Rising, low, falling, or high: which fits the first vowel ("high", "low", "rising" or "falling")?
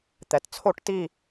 low